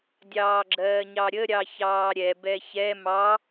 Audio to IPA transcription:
dʲ ɑː ɡ͡ǁ ɜː ɲ ɑ ɾʲ ə ɾʲ ɑ ç ɑː ɾʲ ɛ b ɛ ç ɛ m ɑ

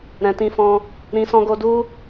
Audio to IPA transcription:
ɾ ɛ̃˨ t ĩ˧ f ɔ̃˧ | ɾ ĩ˧ s ɔ̃˦ ɡ o˦ d u˦

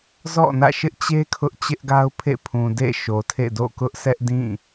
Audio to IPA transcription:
z ɔ̰˦˨ n ä̰˦˨ ʃ ɪ˦ ʔ t͡ɕ e˦ kʰ ʊ˦ ʔ t͡ɕ ɪ˦ ʔ ɡ a˦ ʊ̯ pʰ ḛ˦˨ pʰ ũ˨ d ḛ˦˨ ʃ o˨ tʰ ḛ˦˨ d o̰˦˨ k ʊ˦ ʔ s ɛ˦ ʔ d ĩ˦˨

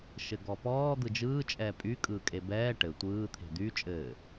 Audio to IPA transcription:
ʃ ɘ ɡ ɔ p ɔː d̪ ɯ d͡ʒ ɯː t͡ʃʼ ɛː pʼ y kʼ ɯː kʼ e b ɛː ʈ ɘ tʷ ɯː t̪ʰ e̤ d̪ y t͡ʃʼ ɘː

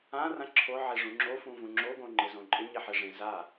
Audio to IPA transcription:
ã r ã ǁʰ o ʕ e ʐ ũ ŋ͡ǁ o f ũ v ũ ŋ͡ǁ o ɡ õ ŋ͡ǃ e z õ ǃʼ ɪ ɲ e ħ e ʐ ẽ z a

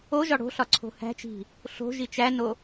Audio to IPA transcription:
o ʒ ɒ ɽ o̤ ɬ ɒ ǀʰ o̤ h æ̤ t͡ʃ i̤ | ɬ o̤ ʒ i t͡ʃ æ n o

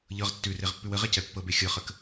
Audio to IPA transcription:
ʎ ɤ ʁ tː ʉ r e ʁ pː ʉ w ə ʁ e c ɛ pː ɤ b e xʲ ɤ χ ə k

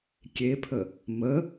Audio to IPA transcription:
kʲ e pʰ ə | m ə

